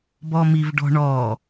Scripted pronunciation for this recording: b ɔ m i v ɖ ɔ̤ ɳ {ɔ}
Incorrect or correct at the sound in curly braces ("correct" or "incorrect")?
correct